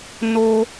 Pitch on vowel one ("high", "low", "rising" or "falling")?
high